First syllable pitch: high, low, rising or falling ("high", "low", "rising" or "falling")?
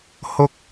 low